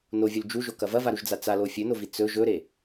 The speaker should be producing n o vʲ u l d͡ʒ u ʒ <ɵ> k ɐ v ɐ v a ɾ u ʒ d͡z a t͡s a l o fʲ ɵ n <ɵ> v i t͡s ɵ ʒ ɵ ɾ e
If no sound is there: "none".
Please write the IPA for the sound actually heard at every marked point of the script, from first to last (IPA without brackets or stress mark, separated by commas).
o, o